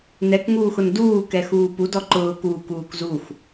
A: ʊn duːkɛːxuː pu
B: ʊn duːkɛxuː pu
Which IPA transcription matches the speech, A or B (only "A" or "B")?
B